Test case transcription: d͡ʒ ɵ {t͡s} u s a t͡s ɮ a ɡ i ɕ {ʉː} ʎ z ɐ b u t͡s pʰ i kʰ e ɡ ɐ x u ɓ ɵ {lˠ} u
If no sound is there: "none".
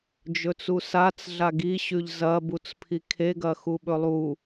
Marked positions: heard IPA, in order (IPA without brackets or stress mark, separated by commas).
t͡s, ʉ, lˠ